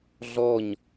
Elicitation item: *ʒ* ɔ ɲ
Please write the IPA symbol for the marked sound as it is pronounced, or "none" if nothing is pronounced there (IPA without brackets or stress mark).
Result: ɮ